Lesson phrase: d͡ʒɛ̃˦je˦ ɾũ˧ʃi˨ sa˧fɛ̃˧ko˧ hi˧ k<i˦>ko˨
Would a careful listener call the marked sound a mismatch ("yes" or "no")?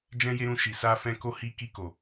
yes